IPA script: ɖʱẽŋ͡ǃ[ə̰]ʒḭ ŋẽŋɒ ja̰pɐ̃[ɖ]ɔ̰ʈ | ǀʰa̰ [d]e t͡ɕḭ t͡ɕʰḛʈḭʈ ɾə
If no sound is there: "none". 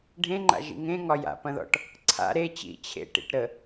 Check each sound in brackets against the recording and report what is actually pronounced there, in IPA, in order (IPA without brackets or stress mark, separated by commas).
a̰, ð, ɾ